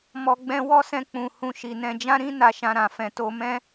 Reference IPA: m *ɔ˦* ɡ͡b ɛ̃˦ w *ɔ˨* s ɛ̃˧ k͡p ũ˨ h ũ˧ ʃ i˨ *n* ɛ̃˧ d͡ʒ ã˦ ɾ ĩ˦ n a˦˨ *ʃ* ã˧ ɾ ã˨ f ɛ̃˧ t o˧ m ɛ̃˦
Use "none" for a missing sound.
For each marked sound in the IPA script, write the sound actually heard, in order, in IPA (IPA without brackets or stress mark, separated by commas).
ɔ˧, ɔ˦, n, ʃ